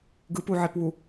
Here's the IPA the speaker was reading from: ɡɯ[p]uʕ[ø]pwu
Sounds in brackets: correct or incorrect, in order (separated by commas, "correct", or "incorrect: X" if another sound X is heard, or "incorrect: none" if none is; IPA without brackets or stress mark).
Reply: correct, incorrect: e